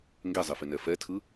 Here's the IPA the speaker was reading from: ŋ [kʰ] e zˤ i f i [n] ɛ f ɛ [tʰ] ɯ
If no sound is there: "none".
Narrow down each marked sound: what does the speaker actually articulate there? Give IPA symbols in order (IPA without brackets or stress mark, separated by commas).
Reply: ɡ, n, tʰ